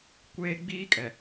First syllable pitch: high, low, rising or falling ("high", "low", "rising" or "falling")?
high